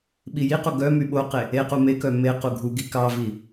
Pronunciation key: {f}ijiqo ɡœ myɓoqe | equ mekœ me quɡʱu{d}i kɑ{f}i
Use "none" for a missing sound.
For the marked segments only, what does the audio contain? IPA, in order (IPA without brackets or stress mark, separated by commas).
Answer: ɓ, ɡ, v